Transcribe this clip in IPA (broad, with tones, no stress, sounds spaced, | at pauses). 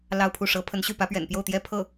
l ɑ˥˧ ʊ̯ pʰ u˥˩ ʂ ɤ˧˥ pʰ ə˧˥ n ɕ y˥˩ p ä˧˥ p ɥ ɛ̰˨˩ n p j o˥˩ ʊ̯ t̪ j ɛ˥ pʰ ɤ˥˩